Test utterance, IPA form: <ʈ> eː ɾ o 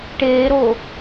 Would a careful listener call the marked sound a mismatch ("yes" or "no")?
no